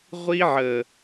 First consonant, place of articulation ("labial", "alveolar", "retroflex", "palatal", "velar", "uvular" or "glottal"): uvular